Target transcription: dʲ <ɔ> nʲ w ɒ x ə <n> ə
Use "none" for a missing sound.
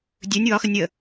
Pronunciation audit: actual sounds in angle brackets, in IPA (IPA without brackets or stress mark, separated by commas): ɵ, nʲ